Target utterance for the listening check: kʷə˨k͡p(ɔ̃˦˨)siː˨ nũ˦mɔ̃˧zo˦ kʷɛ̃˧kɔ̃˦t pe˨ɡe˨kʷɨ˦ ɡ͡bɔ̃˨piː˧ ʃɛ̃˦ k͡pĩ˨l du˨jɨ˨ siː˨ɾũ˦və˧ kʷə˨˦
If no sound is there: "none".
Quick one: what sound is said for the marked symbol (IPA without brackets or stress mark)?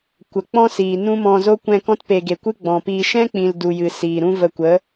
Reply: ɔ̃˦